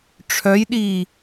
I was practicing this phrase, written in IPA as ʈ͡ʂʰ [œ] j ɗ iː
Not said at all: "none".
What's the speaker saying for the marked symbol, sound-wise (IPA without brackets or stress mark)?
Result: œ